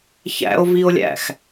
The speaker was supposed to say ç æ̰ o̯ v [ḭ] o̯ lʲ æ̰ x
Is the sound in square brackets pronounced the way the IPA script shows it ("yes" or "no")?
no